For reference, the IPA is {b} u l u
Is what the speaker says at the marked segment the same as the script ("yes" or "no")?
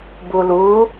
yes